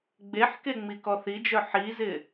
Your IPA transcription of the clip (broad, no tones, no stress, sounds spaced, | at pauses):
ɡ͡b e ħ k e ŋ͡m i k ɔ θ i d͡ʒ œ ħ i z ɪ